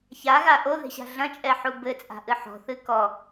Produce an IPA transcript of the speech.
ç a ɣ a ʔ o ð e̤ ɕ a̤ ɮ ɐ̃ t͡ʃʼ ɛ ħ u b ɘ t͡sʼ a̤ ʔ ɨ ħ ɔ̤ θ ɨ k ɔ

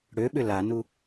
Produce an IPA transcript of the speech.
ɽ ø ɓ ʏ l a n u

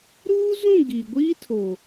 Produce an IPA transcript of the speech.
ɾ uː˦ z ũ˦˨ ɡ i˨ ɡʷ iː˦ tʰ o˨

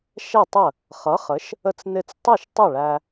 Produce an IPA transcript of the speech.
ʃ ɛ˥˩ tˤ ə˥˩ | χ ʌ˩˥ χ ə˩˥ ʃ | ə˧ t͡s n̪ ɪ˧ t͡s tˤ u˥˩ ʃ tˤ ə˥˩ ɭ æ˧

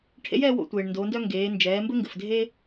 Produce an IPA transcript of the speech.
ʈʰ ḛ˧˥ j ɛː˥ w o̰˧ tʷ eː˩ ɳ n d oː˩˧ n d œ˥ ŋ ɡ eː˩˧ n d͡ʒ ɛː˩˧ m b ɘ˥ ŋ ɡ ɘ˩ f dʱ e˥

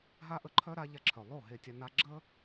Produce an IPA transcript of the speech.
ɦ a˦ ʔ ə˧ ǃʰ œ˦ ɾ a˧ ʎ a˧ ǁʰ œ˨ lˠ o˦˨ ɦ e˧ tʲ a˧ n a˧ ɡ͡ǁ ə˦

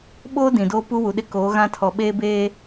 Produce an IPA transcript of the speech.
ɓ oː˦ d ĩ˨ d oː˦ p u˦ w u˨ ɗ ɪ˦ k oː˨˦ ɣ ã˦ tʰ ɔ˨ ɓ eː˦ b eː˦

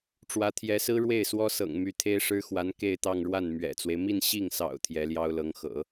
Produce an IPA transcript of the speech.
ʈ͡ʂ w ä˧˥ t̪ʰ j ɛ˧˥ s ɹ̩˥ ɻ w e˥˩ ɪ̯ s w ɔ˥ s ɤ̰˨˩ ŋ m y˧˥ t̪ʰ e˥ ɪ̯ ʂ ɻ̩˥ x w a˧˥ n k e˥˧ ɪ̯ t̪ ɑ˥˧ ŋ ɻ w a˥˩ n m ɥ ɛ̰˨˩ t͡s w e˦ ɪ̯ m i˥˧ n ɕ i˥˩ ŋ s ɑ̰˨˩ ʊ̯ t̪ʰ j ɛ˧˥ l j ɑ˥ ʊ̯ l ɤ˧˥ ŋ x ɤ̰˨˩˦

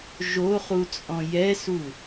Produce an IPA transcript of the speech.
ʒ o χ u t͡sʼ ɔ̃ j ɛ s u

